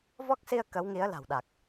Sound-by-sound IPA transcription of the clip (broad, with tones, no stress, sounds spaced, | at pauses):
v ɔ˦˥ k̚ s i˧ ə̯ k ə˨˦ w ŋ i˨˦ ə̯ l a̤˨˩ w ɗ a˨˩ k̚